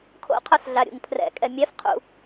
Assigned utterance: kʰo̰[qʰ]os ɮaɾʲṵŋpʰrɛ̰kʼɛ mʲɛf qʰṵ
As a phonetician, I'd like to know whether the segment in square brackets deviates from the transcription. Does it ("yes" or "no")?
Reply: no